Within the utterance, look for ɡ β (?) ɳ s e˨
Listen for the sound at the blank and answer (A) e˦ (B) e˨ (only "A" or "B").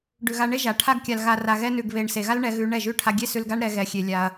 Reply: B